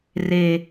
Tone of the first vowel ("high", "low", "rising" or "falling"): low